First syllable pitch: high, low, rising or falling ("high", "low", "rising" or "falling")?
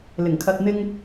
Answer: low